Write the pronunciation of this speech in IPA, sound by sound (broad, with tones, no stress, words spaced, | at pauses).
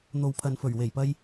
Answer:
n̪o˨wpʰɐ˨nfɵ˨˩ɥ we˨˩jpɐ˧j